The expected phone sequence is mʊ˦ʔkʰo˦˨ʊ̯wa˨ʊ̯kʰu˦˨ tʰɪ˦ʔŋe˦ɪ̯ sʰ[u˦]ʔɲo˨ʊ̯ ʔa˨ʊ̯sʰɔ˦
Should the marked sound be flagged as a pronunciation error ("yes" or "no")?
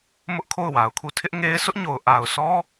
yes